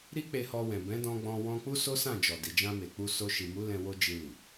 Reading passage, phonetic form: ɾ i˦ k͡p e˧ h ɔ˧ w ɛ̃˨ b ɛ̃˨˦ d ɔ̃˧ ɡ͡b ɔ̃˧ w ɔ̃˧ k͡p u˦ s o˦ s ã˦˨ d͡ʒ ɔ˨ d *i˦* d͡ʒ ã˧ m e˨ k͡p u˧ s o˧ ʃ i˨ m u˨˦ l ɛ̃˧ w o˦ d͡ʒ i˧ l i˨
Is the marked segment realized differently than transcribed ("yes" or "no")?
yes